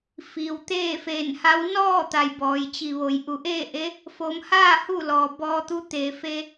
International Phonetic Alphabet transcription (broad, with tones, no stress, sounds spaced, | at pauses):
f iː˩ w t̪ eː˥˨ f eː˧˩ n h a˧˥ w n ɔː˥˨ t̪ a˩ j b ɔː˩ j t͡ɕ i˩ ʋ o˩˧ j ʔ u˩˧ ʔ eː˥˨ ʔ e˧˥ | f o˩˧ m h aː˥˨ h u˥˨ l ɔː˩ b ɔː˧ t̪ u˧˥ t̪ eː˩ f e˧